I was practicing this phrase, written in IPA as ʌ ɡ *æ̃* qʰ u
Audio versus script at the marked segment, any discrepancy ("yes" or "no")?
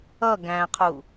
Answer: no